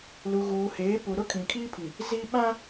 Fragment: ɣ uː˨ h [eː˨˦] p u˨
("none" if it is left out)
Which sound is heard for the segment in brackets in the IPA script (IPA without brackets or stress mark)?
eː˨˦